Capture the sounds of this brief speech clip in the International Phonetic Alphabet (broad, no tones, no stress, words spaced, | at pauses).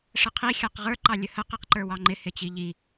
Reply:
ʂəqʰi xʲɑqʁə˞ ǃɑlʲəhə qiqǃə˞wɑŋ͡ǃɪ hɪt͡ɕiʎi